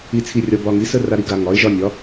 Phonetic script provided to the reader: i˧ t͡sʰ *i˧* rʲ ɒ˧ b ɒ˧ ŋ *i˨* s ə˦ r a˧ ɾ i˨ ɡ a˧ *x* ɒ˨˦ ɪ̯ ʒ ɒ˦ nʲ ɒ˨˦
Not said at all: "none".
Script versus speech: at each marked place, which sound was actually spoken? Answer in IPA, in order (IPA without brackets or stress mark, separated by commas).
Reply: i˧, i˨˦, ŋ